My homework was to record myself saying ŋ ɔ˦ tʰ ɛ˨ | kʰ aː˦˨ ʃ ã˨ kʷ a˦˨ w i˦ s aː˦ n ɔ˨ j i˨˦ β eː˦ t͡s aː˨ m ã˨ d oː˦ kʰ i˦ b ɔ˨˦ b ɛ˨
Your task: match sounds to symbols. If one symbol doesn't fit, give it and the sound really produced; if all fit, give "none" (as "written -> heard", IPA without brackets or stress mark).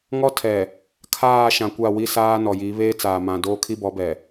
none